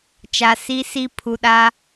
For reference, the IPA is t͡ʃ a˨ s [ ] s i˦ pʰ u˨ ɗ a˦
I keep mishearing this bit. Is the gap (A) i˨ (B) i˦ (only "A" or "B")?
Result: B